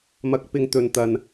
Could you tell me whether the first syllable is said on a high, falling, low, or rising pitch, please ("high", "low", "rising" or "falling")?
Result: rising